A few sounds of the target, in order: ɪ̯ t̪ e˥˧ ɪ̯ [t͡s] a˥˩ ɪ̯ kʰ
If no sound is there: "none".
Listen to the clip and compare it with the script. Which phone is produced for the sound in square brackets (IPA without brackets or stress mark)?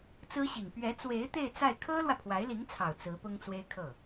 t͡s